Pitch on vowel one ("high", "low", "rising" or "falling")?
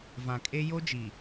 low